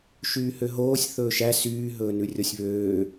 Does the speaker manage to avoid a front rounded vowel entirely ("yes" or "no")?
no